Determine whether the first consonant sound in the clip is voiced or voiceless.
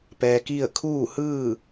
voiceless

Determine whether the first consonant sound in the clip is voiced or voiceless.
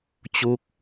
voiceless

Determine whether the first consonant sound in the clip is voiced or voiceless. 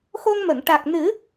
voiceless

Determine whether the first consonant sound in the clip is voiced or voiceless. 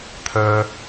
voiceless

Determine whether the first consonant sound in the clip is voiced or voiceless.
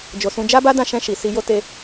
voiced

